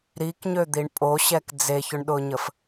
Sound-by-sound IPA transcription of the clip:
ɾikɲød̪iɳ pʼoɕɛk d͡zeçʊɳɗʊɲəf

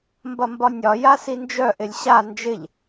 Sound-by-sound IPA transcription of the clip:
mbɐmbɒnʲɒ jasind͡ʒœ ʔɪlʲɕa nd͡ʒɪʎ

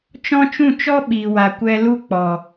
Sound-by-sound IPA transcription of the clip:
t͡ʃɔ̃˦t͡ʃũ˦˨t͡ʃɔ˦ ɓi˨wa˨ kʷɛ˧ lu˦ k͡pɔ˨

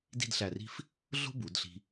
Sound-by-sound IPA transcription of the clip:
di̤˥˧dɬæ˧˩ri̤˥˧f | ɮo̤˥bu˩˧d ɬi̤˧

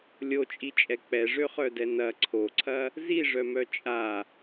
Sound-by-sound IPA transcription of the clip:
lʲot͡ʃʼit͡ʃʼɛ k͡pɛʐøχœdɛ nɐ ǀʰoǀʰɐ | ziʐœmœ t͡ʃʼa

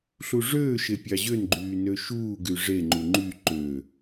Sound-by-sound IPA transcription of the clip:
ɬuʐøːʃe pʲɑʑønɡ͡ǃyː nøʃuːɡy ʐeŋ͡ǃu ŋ͡ǃy ǃø

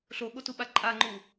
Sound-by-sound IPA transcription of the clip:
ɬoɠotuɓa ǃʼaŋ͡ǃu

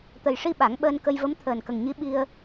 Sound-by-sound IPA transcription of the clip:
t̪ə˨˩jʂi˧ ɓa˨˩˦ŋɓəː˧nkə˧j və˧˥mt̪ʰəː˨˩nkə˨˩ŋɲi˧˥ ɓi˧ə̯

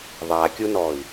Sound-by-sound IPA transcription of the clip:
ðˤakʲunɔi̯

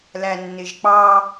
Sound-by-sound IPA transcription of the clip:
lænːɪʒk͡pɑ

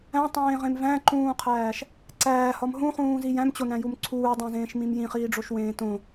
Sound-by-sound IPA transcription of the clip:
æ̃tˤẽːʁẽm væ̃ǃũːqʰæːʃ | ǀæːhɒm ɦũχũːzi jæ̃mt͡ɕonæ̃jum ǀʰuːdˤæ̃zẽːʃmĩm jĩχiːɖ͡ʐoʃwẽː tõ

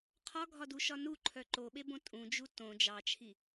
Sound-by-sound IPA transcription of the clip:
qʰɒɡʱɒduʃɒ nuǃʰœ ǃoɓebõ tʼũd͡ʒu tõ d͡ʒɑt͡ʃʰi

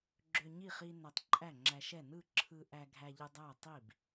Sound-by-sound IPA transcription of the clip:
ɡ͡ǁø˧ɲi˥˩χi˧ næ˧tˤǃʼæ˥˩ŋ͡ǁæ˧ʃɛ˥˩ nɯ˥˩ǁʰɯ˧ ʔæ˧ɡʱæ˧ʎɯ˧ dˤæ˥˩ tˤi˥˩b

